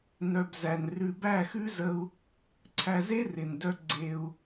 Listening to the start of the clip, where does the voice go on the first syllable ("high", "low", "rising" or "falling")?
low